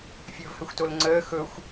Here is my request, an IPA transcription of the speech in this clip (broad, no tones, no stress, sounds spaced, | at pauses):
fʲ ɵː v h ə xʷ t o l ŋ͡ǀ əː x ɵ xʷ